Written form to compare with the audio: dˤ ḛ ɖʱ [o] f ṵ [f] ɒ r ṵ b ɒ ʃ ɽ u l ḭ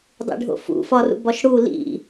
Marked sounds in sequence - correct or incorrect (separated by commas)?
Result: incorrect, correct